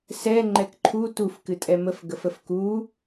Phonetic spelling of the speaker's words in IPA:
s ɛ ŋ͡ǃ ɛ k ǃʰ u t u f k ɨ tʼ ɛ m ə f ɡ ə f ə f k u

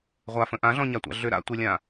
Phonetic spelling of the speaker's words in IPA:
ʁʷ a f ə̃ ʔ ã ɮ ɔ̃ ɲ a tʷ a̰ ɮ ʏ ɾ a̰ tʷ e lʲ ã

